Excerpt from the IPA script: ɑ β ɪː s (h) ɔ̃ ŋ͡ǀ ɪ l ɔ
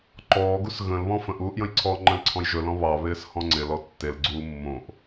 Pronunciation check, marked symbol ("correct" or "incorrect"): correct